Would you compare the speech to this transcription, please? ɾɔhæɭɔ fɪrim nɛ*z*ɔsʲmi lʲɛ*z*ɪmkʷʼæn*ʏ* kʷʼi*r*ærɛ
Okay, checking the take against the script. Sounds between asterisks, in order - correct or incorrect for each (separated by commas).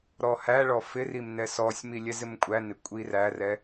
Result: incorrect, correct, incorrect, correct